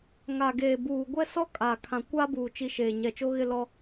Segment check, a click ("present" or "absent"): absent